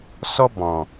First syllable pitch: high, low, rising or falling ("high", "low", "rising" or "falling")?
high